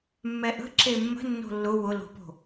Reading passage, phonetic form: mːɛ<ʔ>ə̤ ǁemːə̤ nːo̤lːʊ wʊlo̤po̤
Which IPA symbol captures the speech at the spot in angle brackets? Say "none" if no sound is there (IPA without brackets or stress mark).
ʔ